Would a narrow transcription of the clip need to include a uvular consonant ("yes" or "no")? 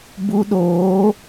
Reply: no